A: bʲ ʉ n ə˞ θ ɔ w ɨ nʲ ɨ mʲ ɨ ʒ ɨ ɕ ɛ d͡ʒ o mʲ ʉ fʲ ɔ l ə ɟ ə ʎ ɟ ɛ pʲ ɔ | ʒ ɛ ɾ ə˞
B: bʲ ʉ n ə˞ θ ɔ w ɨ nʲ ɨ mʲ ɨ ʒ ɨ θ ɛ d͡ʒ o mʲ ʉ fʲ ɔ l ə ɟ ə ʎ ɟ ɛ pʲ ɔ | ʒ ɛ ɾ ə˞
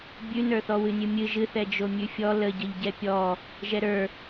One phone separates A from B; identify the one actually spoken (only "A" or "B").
B